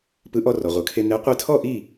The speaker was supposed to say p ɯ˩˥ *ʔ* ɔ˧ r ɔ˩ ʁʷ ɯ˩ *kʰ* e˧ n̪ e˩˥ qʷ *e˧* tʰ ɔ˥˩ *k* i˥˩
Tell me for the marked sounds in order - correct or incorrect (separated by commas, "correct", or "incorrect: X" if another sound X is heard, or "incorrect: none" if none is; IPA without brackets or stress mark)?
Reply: correct, correct, correct, incorrect: ʔ